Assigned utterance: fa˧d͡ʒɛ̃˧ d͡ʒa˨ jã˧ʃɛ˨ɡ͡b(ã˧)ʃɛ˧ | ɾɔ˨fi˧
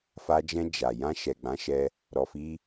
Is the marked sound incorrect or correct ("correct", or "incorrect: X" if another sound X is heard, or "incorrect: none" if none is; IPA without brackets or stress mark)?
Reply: incorrect: ã˨˦